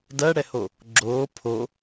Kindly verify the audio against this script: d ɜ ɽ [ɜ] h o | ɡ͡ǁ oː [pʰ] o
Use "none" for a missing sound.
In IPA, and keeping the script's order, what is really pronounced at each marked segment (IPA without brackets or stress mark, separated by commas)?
ɛ, pʰ